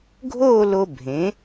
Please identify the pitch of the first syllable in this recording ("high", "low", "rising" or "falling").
falling